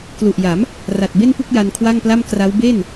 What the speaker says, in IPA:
klu˨˩ʔja˩˦m | ra˨˩t̚be˥˩npu˥˩k̚ ja˧nkʰwa˥˩ŋpla˥˩m kra˦˥w be˥˩n

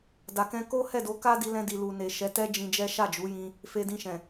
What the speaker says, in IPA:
da˨kɛ̃˧ ko˦hɛ˦˨do˨˦ ka˦di˧lɛ̃˧di˨ lu˨ne˨ʃɛ˨˦ tɛ˦d͡ʒĩ˧d͡ʒɛ˦ ʃa˦˨d͡ʒu˨˦jĩ˧ | fe˧dĩ˧ʃɛ̃˨

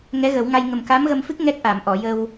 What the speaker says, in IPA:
ŋɛ˧˥ɣə˨˩˦wŋa˧j ŋə˨˩mka˧˥mɣə˧mfɨ˦˥k̚ ŋɛ˦˥k̚ʔa˨˩˨mʔɔ˨˩˨jə˧w

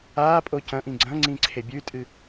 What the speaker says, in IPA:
aːpʼo cɐ̃ ʔĩɡ͡ǀɐ̃ŋ͡ǀĩ ǀʰebʲʉtʼɨ

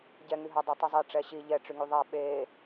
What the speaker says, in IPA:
ɟɛŋyɦadˤe tˤyzˤe ʈ͡ʂɛɕi ʎɛʈ͡ʂyŋy ðˤa ɓe

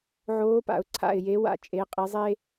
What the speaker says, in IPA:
ʕoː˨˥pa̰˩ʊ̯ ǀʰa̰˧˩ɪ̯je˨˥wa̰˨˥ t͡ʃʼe˩˧qʼi˩˧zˤe˦

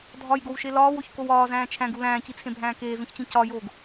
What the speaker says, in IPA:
dʱɒjɡowʃe lɒːwoçkow ɒːzæ̃ː t͡ʃʰæ̃ɡu læ̃ːcit͡sʰẽbʱæ̃ː keːzũçt͡ɕĩ cɒjoːɡ

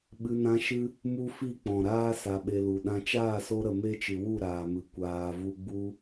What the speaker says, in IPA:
ɓɨ˧nã˦ ʃɨ˦ | mu˦fi˦˨k͡pɔ̃˨ ɾaː˦ sa˧ɓe˧lu˨ ɗã˧ t͡ʃaː˦˨so˧ɾə˨ me˦t͡ʃɨ˨wu˦˨ ɾaː˨mɨ˨ kʷaː˨vu˧ɡ͡bu˦

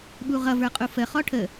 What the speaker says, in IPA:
ɓuʁʌvə˞ qʼufə χɔʈʰə

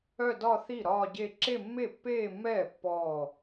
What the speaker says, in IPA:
œ˥˧dɒ˥˧θi˥˩ ɾɒː˥˧ɟe˥˧ ǁe˥˧mːe˥˩pːeː˥˧mːɛː˥˩ pːɔː˥˩

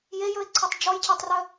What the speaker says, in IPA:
jejɵɪ̯ǀʰœtˤ d͡ʒɔjcʰɛtˤrœ

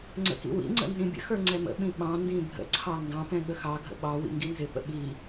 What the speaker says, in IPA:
ŋ͡ǀə̰kḭwḭŋ͡ǀə̰ nzĩbʲə̰xə˞ ŋ͡ǀɛmə̰ɓĩ ɓɑ̃ndĩ bʱə̰ǀʰɑ ŋɡɑ̃pɛ̃ ɠəxɑɡʱə̰ ɓɑ wḭŋɡinzɪpə̰ ɓi

